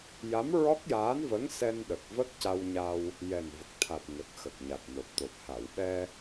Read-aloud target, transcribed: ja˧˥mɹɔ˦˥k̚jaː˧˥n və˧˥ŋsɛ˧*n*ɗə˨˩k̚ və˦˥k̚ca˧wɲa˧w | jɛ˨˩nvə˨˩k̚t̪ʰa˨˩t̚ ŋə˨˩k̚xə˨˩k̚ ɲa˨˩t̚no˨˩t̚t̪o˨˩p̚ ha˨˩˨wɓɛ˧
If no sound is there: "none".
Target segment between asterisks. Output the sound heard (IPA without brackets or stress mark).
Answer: n